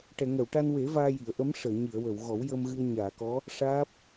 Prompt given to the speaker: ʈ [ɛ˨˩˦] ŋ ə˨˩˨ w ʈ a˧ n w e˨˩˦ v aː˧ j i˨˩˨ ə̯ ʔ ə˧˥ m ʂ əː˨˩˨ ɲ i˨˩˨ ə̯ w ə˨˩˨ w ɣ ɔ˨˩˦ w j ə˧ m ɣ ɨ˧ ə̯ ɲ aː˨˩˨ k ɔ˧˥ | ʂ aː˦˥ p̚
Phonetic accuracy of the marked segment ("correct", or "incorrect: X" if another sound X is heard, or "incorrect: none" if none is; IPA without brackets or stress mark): incorrect: ɛ˨˩˨